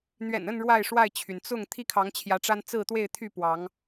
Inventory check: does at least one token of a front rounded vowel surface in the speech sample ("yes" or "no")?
yes